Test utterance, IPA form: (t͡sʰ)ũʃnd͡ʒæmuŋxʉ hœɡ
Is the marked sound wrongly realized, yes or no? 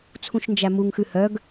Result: no